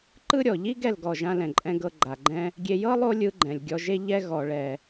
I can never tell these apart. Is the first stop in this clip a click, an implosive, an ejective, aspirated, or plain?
click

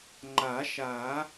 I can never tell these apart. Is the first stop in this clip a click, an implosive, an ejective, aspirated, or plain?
click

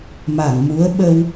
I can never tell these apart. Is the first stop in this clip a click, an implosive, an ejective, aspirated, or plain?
implosive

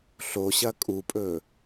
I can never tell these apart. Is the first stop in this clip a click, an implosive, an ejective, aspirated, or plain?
ejective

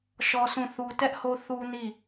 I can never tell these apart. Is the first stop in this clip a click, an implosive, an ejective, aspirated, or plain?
plain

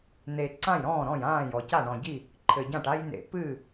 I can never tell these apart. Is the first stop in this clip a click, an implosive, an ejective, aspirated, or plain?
click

